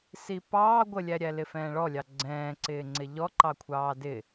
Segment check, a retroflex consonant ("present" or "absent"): present